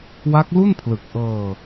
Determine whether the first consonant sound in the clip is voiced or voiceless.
voiced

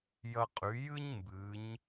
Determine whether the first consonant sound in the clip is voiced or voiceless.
voiced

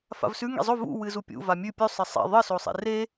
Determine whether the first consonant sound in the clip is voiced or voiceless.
voiceless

